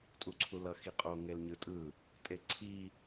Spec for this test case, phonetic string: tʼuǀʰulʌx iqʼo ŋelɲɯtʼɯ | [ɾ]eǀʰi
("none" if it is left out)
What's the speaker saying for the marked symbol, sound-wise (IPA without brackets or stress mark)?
tʼ